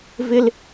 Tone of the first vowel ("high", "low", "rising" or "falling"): high